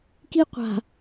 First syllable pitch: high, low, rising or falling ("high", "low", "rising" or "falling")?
high